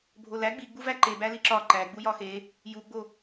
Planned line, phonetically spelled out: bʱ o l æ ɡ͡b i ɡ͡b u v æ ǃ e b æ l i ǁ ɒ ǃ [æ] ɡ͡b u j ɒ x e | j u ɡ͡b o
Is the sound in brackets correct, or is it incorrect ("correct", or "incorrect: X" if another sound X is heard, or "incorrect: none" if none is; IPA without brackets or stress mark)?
correct